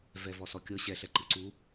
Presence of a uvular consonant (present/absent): absent